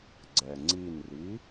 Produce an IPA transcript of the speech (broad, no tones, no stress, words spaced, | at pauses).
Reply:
ɡ͡ǀɛŋ͡ǀinri